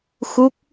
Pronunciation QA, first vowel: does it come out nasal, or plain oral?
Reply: oral